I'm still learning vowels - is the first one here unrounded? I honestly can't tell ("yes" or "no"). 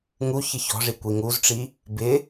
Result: no